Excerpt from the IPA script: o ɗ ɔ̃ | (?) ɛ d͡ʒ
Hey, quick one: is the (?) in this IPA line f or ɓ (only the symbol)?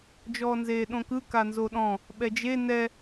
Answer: ɓ